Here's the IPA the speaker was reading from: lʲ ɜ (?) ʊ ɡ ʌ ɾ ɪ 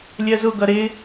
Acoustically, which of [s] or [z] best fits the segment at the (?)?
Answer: z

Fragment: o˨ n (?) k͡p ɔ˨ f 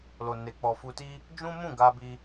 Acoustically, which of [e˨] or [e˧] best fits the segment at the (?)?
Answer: e˨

